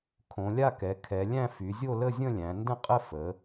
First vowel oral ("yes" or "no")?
no